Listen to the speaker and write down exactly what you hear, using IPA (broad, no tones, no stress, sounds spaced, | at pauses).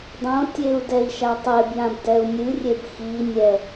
dˤ õ tʲ e u̯ d ɛ i̯ ʃ a tˤ e b j ã b d ɛ u̯ nʲ ɨ rʲ e b x i nʲ ɛ